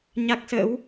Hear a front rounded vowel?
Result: no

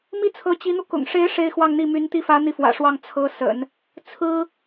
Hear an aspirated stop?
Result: yes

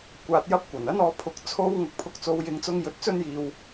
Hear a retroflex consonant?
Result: no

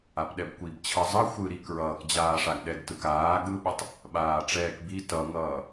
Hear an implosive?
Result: yes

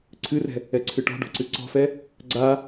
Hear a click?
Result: yes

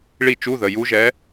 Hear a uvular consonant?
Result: no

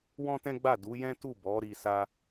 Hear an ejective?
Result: no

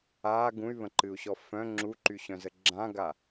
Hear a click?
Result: yes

